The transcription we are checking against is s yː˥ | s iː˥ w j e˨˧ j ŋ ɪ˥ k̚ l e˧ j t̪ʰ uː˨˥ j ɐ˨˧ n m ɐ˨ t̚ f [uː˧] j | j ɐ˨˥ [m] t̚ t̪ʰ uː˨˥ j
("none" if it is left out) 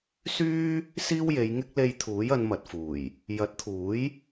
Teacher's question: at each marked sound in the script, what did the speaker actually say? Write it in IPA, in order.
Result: uː˨˩, none

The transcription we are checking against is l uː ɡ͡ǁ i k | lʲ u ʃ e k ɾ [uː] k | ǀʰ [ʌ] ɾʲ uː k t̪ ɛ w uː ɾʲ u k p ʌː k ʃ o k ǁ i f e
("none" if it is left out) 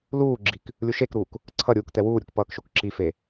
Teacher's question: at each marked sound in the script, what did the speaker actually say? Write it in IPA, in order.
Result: uː, ʌ

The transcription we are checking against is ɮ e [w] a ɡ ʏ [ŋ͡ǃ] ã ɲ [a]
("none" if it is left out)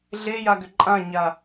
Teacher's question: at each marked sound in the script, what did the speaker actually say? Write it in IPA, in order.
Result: j, ǃʼ, a

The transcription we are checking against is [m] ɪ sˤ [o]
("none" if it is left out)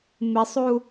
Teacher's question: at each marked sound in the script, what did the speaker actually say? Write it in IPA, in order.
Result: m, u

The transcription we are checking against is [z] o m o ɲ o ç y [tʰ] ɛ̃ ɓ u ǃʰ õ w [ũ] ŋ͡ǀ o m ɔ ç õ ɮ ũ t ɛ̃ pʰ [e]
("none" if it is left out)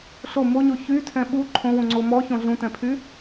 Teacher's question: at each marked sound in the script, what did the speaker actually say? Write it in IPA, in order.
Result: ɬ, tʰ, ũ, y

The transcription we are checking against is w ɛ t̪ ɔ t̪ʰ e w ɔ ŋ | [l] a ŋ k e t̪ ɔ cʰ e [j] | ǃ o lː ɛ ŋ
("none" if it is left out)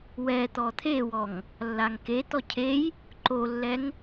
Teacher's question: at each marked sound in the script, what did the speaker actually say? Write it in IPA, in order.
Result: lː, j

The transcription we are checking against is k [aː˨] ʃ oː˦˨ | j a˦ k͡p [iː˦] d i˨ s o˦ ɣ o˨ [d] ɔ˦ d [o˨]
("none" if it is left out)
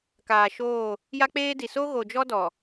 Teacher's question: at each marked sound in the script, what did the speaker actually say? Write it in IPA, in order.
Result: aː˨, eː˦, d͡ʒ, ɔ˨

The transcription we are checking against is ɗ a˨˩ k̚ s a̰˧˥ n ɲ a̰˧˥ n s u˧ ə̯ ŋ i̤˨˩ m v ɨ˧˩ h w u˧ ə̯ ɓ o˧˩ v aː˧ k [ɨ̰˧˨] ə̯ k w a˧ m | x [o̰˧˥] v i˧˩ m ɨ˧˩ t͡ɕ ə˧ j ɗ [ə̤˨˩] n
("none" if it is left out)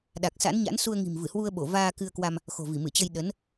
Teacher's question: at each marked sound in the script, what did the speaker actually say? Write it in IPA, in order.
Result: ɨ˧, o̤˨˩, ə˨˦

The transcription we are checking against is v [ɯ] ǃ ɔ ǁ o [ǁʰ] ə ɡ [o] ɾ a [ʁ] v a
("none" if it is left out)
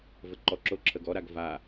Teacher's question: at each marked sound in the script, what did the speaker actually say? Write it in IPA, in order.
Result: ə, ǁʰ, ɔ, ɡ

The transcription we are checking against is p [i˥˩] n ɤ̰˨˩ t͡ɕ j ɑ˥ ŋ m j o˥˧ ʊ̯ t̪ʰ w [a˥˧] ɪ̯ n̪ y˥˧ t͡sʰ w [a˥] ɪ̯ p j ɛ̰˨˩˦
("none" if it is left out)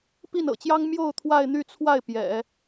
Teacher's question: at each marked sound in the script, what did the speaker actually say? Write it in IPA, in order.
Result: i˥˩, a˥˧, a˥˩

